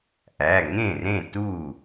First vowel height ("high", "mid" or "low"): low